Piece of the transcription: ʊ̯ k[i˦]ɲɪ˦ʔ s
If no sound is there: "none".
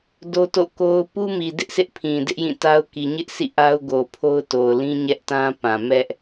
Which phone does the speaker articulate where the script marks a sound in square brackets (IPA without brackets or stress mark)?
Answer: i˨